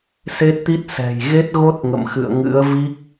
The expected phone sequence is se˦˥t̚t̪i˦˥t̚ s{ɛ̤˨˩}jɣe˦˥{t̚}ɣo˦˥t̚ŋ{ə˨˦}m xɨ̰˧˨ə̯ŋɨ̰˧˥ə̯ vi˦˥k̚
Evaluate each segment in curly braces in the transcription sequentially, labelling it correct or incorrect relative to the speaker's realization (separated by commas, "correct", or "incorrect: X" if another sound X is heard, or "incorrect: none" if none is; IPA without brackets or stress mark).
correct, correct, incorrect: ə̰˧˨